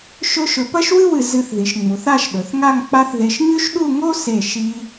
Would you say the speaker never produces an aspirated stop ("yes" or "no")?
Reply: yes